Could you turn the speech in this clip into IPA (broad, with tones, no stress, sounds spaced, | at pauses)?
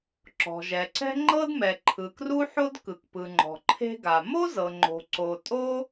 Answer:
ǁ ɔ̤˩ ʒ ɛ˩ ǀ ɛ̤˥ ŋ͡ǃ ɤ˥ d m ɛ˩ ǃʰ ɯ˩ k r u˥ ħ o˥ d k ɯ˩ k p ɯ˩ ŋ͡ǃ ɔ̤˩ ǃʰ e̤˥ ɡ a˩ m o˥ z ɤ˩ ŋ͡ǃ o̤˩ ǀ o˩ tʼ o˥